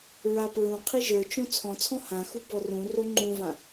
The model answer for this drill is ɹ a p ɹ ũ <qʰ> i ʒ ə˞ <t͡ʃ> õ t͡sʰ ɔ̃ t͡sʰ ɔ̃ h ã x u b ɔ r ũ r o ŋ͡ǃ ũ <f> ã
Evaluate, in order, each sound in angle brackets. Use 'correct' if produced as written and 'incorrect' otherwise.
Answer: correct, correct, incorrect

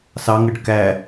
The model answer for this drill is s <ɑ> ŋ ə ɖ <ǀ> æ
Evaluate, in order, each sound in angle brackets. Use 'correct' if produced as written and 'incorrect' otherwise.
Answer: correct, incorrect

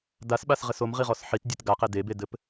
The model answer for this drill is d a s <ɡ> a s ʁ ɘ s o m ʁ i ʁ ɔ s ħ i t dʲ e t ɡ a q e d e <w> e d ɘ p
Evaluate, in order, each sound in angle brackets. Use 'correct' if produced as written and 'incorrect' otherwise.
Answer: incorrect, incorrect

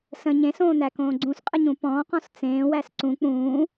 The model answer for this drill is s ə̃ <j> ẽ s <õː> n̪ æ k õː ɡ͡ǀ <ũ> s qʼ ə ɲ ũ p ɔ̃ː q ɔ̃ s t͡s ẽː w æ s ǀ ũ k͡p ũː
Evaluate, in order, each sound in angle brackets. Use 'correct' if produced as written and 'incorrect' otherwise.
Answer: incorrect, correct, correct

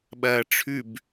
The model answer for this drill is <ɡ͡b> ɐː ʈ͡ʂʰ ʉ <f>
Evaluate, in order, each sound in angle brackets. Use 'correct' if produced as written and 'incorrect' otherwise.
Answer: incorrect, incorrect

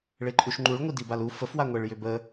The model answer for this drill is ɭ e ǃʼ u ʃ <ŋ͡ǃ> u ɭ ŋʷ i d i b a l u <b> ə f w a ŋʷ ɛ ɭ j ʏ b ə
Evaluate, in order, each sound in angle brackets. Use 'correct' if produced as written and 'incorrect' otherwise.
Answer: correct, incorrect

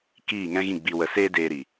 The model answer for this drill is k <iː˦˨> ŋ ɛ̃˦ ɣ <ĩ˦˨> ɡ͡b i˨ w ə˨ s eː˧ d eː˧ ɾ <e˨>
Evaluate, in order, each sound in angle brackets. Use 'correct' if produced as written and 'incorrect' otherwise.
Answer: correct, correct, incorrect

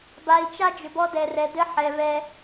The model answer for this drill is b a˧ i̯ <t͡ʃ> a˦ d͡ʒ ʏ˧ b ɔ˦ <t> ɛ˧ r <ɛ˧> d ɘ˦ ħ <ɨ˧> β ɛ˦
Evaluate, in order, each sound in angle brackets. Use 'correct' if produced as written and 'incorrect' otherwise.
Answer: correct, incorrect, correct, incorrect

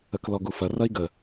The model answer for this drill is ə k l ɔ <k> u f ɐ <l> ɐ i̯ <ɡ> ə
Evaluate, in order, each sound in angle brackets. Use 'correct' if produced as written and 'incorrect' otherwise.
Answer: incorrect, incorrect, correct

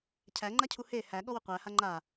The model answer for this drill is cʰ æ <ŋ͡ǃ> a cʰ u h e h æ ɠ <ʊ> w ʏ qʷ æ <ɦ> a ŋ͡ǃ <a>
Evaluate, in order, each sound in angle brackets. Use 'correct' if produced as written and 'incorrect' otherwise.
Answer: correct, incorrect, incorrect, correct

